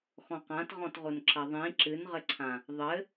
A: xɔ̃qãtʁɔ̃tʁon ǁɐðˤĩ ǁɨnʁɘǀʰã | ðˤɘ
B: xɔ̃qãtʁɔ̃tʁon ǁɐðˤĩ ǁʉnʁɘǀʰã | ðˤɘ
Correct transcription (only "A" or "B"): A